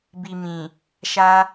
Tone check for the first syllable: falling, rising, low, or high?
low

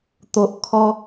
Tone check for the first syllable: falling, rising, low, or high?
low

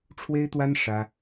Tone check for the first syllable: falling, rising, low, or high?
high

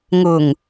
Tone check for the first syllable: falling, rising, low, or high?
low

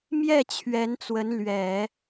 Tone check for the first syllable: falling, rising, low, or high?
falling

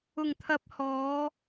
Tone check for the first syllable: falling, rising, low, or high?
low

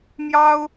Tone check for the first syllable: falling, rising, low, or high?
high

